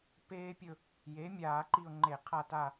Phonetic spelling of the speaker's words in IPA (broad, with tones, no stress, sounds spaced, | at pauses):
p eː˦ pʲ ɵ˦˨ | j e˩˥ mʲ aː˧˩˧ ǃ i˦˨ ʊ̯ ŋ͡ǃ e˧˩˧ qʰ a˦˨ t a˦˨